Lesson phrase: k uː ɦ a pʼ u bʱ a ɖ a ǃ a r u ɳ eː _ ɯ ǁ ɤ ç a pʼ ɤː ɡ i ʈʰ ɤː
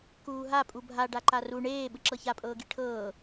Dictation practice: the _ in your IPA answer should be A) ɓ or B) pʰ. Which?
A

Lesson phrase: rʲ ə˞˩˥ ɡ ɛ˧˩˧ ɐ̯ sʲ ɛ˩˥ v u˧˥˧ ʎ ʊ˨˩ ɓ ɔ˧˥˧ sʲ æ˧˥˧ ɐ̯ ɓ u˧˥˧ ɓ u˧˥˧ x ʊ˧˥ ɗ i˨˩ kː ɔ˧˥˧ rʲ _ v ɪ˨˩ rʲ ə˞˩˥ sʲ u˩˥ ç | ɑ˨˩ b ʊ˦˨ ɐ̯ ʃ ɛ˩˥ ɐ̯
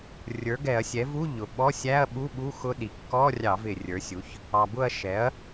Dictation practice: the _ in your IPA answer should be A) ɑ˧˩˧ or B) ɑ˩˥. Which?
A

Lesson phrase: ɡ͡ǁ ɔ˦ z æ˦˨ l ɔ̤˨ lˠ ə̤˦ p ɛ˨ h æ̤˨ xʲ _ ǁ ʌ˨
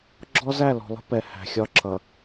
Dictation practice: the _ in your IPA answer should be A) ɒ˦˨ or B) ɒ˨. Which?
A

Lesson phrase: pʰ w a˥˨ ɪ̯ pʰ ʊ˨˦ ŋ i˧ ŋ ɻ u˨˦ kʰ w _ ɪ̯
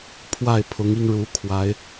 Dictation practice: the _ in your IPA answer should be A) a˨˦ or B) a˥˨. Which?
A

